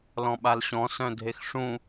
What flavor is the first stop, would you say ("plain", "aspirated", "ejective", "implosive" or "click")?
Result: implosive